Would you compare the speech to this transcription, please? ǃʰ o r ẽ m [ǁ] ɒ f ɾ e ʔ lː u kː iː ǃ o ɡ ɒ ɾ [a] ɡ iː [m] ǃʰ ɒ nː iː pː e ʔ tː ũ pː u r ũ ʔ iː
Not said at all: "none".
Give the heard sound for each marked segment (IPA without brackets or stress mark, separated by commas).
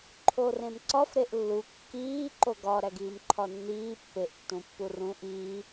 ǀ, æ, m